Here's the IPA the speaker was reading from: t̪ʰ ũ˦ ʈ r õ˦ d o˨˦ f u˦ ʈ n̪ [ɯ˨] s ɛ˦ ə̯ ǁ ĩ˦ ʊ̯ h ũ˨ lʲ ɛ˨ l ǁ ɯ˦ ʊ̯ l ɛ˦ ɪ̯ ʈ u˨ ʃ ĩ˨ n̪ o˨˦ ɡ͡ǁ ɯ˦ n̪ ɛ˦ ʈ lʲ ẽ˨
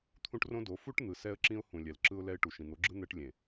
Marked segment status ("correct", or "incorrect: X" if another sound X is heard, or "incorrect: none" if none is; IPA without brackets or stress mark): correct